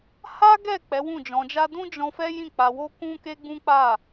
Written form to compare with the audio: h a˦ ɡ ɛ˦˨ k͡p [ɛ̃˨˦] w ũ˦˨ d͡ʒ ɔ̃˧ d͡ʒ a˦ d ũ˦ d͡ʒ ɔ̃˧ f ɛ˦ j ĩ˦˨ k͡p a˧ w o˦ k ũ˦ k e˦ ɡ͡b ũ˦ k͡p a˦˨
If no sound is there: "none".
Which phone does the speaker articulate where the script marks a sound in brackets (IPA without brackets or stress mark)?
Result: ɛ˨˦